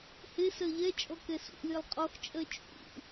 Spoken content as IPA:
h e s ɜ ʎ ɛ t͡ʃʼ ɔ k ɛ s ṵ lʲ e lˠ qʼ ɔ x t͡ʃʼ ɜ t͡ʃʼ ṵ

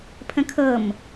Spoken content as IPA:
pʰ ə̃ kʰ ɤ m

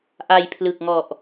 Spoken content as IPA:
ʔ a˧ j pʰ l ɯ˨˩ k̚ ŋ ɔ˨˩ ʔ

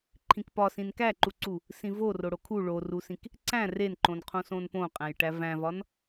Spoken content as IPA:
ǃʰ ĩ k p ɒ s ĩ n k æ ǃ u ǀ u | s ĩ v o r o ɽ o kʰ u ɭ o r u s ĩ k | ǀ æ̃ r e n ǃ õ n qʰ õ s õ n p õ qʼ æ̃ j ʈ æ v æ̃ v ɒ n

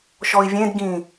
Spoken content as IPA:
ʃ ɔ i̯ vʲ ẽ d ɡ ĩ

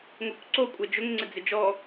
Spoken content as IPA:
ŋ o kʷ ǀ o kʷʼ ɛ d͡ʒ ʊ ŋ ŋ͡ǀ ɪ d͡z ɪ d͡ʒ ɔ

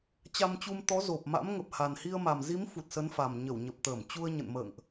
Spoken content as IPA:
t͡ɕ a˧ m t͡ɕ u˧ m t̪ ɔ˨˦ z o˨˩ p̚ m a̰˧˥ m ŋ ə˨˩ p̚ h a˨˩ n h i˧ ə̯ m a˨˩ m z i˨˦ m f u˨˩ t̚ s ə˨˦ n f a˨˩ m ɲ ə˧˩ w ɲ ə˨˩ p̚ t̪ əː˧˩ m t͡ɕ u˧ ə̯ ɲ ə̰˧˨ n m ə̰ː˧˨ ŋ ʔ

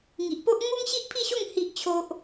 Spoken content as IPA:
ŋ i˨ ʔ p o˦ ʔ ŋ u˦ ŋ ɕ i˦ ʔ pʰ i˥˧ ɕ o˥˧ ŋ h i˦ ʔ t͡ɕʰ o˦ ʔ

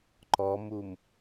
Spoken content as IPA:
ǃ ɔ m u m

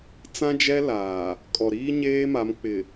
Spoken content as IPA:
t͡s ã˦ d͡ʒ ɛ˦ l aː˨ | kʼ ɔ˨ ɾ iː˦ ɲ eː˦ m a˨˦ m k͡p ɪ˨

